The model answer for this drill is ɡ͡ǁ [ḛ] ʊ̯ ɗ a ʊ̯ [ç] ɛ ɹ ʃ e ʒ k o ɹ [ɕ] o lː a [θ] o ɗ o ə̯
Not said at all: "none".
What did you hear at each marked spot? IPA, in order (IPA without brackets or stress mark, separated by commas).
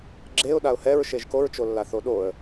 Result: e, h, t͡ʃ, θ